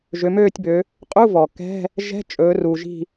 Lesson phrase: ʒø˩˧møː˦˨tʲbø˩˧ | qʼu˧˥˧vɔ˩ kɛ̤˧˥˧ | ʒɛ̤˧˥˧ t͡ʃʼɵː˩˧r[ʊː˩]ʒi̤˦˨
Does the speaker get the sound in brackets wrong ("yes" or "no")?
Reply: yes